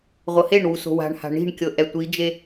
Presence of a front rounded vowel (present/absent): absent